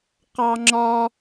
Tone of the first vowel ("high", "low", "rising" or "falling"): high